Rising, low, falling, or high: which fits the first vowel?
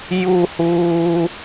falling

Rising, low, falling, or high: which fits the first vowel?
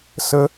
high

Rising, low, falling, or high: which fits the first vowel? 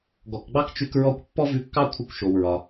low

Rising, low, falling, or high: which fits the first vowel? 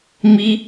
high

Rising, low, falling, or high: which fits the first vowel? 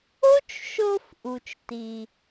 high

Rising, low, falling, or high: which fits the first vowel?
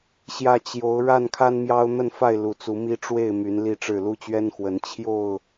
low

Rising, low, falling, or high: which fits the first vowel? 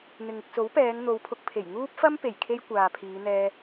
low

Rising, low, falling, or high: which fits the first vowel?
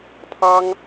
high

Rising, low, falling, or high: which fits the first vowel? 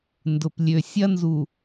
low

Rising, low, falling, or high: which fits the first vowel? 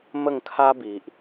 falling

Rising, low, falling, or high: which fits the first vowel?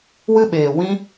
high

